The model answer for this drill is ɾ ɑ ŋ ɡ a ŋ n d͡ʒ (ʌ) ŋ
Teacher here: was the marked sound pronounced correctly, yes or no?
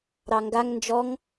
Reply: no